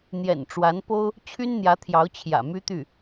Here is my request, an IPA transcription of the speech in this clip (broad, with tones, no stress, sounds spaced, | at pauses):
n̪ j ɛ̰˨˩ n ʈ͡ʂ w a˧˥ n p o˥ ʊ̯ | t͡ɕʰ y˥ n n̪ j ä˧˥ t̪ʰ j ɑ˧˥ ʊ̯ t͡ɕʰ j ä̰˨˩ m y˥ t̪ y˥˩